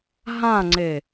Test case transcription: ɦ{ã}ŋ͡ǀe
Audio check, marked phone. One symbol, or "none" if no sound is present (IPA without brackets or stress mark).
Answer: ã